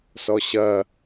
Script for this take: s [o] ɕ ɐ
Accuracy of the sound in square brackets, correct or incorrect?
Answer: incorrect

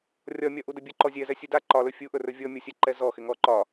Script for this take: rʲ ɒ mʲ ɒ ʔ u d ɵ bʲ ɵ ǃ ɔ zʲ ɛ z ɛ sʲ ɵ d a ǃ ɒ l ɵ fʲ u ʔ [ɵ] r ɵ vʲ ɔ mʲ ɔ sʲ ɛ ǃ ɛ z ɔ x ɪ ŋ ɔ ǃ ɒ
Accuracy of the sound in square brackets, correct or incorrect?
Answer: correct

